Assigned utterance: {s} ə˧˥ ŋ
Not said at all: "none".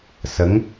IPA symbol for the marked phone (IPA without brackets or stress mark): s